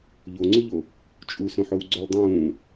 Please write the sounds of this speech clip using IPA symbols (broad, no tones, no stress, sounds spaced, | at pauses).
ʎ o ŋ͡ǀ u ʎ o | t͡ʃʼ u s õ ħ o w ɡ͡ǀ o l dˤ ũː